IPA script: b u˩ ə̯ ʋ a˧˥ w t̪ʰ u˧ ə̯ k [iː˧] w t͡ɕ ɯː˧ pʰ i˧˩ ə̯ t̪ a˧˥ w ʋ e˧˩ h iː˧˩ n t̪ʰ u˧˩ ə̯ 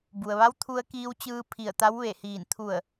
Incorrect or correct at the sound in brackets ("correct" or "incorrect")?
correct